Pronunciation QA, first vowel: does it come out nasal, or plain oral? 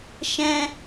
nasal